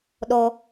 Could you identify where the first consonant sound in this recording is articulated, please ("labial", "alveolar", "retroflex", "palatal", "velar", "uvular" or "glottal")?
alveolar